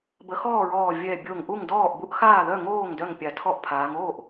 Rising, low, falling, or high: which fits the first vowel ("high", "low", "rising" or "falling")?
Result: rising